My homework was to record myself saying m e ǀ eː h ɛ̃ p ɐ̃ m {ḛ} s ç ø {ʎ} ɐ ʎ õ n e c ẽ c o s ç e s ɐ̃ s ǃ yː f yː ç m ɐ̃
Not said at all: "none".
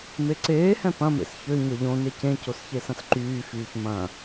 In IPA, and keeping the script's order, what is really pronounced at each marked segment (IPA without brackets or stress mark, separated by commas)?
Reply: ḛ, ɲ